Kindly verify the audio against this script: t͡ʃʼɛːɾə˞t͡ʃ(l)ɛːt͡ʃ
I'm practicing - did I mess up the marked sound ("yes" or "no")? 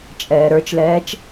no